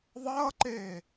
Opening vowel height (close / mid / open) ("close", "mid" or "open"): mid